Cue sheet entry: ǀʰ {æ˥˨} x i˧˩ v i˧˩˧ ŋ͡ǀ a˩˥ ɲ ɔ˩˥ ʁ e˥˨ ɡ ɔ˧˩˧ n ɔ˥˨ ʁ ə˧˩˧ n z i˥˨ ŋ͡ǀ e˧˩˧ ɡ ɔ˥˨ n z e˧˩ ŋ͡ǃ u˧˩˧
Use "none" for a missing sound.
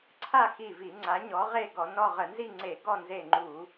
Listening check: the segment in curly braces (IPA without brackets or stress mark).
a˥˨